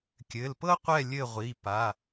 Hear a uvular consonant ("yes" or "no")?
yes